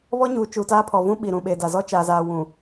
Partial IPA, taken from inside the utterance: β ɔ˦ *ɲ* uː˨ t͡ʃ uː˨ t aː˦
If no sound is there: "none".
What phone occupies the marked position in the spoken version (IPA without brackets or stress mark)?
ɲ